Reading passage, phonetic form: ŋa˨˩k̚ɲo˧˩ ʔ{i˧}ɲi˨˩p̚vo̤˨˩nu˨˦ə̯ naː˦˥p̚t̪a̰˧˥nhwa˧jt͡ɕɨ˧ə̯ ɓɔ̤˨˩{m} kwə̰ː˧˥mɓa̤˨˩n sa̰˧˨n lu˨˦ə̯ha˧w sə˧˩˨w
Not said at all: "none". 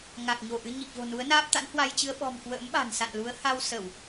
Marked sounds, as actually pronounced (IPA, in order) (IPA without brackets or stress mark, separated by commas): ɨ˧, m